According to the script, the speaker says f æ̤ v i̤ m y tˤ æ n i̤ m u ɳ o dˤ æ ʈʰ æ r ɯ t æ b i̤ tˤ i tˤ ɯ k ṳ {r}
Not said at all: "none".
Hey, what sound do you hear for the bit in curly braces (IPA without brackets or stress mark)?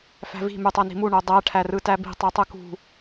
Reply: none